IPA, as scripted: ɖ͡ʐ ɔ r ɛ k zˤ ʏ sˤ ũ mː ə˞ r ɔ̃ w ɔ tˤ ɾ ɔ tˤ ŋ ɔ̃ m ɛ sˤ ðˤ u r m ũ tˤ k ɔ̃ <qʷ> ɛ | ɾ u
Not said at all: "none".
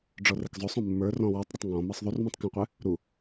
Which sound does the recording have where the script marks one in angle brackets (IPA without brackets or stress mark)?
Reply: qʷ